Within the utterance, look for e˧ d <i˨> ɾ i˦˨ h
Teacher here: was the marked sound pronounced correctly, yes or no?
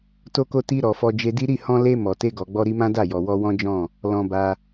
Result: no